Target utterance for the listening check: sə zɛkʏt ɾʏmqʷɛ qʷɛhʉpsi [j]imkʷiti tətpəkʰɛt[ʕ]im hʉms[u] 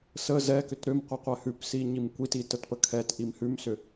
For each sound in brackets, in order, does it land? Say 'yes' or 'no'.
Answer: no, no, no

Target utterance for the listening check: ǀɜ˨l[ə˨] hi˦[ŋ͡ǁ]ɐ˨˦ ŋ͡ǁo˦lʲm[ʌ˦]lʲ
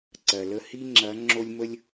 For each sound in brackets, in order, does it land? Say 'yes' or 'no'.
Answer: no, yes, no

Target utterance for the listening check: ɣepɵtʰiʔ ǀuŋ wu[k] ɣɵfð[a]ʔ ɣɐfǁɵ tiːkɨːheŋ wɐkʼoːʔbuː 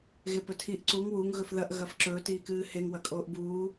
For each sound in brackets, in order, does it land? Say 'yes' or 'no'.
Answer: no, no

